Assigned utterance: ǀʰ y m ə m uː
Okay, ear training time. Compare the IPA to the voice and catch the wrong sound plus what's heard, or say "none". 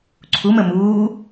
y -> u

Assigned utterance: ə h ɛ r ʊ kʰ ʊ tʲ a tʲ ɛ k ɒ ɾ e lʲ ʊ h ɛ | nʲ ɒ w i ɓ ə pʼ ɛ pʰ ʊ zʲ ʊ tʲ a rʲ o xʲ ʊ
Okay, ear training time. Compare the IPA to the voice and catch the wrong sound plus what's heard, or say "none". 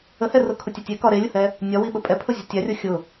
none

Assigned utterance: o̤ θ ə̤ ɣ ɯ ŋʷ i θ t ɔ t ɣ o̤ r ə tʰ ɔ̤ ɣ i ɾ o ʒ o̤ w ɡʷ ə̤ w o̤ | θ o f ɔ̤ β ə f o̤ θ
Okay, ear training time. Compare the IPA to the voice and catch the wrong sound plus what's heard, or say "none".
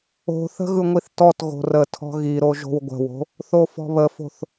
none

